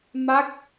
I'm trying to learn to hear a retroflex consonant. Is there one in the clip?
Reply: no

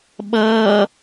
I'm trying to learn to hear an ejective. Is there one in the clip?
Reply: no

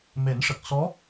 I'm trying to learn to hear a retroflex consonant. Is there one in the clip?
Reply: yes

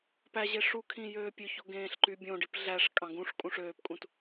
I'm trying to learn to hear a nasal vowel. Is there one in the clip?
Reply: yes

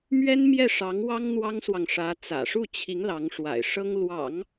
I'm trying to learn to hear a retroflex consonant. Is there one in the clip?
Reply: yes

